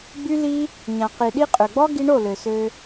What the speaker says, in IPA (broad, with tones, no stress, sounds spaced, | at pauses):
ɡ͡b y˦ l i˦ | ɲ ã˨ q i˨ ɗ i˦ qʼ ø˨ ɡ͡b ɔ˦ ɡ i˧ ɳ o˦˨ l ø˨ s ø˧